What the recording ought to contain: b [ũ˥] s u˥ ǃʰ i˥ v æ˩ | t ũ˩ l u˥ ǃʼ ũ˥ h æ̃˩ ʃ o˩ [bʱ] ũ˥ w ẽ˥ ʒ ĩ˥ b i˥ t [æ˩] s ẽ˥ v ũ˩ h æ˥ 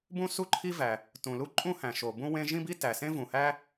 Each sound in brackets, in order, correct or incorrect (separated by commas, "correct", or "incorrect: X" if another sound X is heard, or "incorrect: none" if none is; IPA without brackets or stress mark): correct, incorrect: b, correct